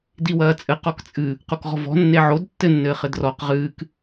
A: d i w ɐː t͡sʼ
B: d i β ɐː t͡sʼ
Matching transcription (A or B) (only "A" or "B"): A